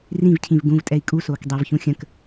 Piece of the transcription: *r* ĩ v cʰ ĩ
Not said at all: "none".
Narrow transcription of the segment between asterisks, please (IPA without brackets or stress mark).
r